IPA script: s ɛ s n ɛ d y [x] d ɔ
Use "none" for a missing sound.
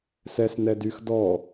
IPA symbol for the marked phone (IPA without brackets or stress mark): x